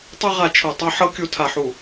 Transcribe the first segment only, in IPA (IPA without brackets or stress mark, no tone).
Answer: tˤ